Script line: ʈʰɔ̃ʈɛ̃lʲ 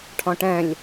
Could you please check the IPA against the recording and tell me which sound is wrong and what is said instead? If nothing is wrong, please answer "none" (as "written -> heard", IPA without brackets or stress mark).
none